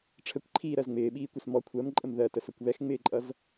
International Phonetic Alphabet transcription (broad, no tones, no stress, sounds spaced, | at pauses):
ʈ͡ʂʰ ə kʷ ǃʰ iː ɾ ɜ z ŋ͡m ɪː ɓ iː kʷ ɛ s m ɔ kʷʰ ɜ m ǃʼ ə m ð ɜ t ə s ʌ kʷ β ɛ x ŋ͡m ɪː ǃʼ ʌ z